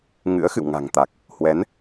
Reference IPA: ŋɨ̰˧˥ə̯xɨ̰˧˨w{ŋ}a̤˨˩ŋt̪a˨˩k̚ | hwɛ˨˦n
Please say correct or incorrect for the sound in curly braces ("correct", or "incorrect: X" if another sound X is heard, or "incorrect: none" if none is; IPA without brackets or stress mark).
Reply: correct